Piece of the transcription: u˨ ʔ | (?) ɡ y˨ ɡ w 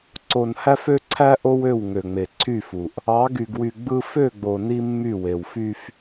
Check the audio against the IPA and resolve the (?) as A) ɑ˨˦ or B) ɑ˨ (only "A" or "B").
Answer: A